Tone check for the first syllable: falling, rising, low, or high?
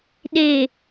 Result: low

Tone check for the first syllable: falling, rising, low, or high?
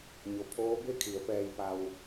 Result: low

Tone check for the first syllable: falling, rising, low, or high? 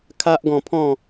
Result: high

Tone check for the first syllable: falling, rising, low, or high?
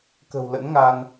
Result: low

